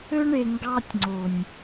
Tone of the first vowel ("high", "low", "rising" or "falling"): high